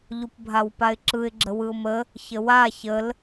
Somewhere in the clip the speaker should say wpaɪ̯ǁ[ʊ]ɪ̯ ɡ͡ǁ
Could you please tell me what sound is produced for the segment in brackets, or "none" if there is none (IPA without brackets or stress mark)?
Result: ɯ